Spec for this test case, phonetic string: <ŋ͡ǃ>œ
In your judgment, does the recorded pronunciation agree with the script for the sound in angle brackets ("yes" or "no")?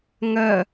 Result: no